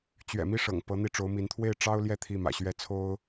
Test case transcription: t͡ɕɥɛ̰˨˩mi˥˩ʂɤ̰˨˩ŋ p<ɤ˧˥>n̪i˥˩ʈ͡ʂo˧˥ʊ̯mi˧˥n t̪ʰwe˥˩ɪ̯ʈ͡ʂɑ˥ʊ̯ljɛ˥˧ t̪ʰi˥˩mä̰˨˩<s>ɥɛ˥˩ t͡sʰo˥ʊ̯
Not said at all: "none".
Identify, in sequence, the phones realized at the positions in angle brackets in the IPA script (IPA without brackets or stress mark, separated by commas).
ɤ˧˥, ɕ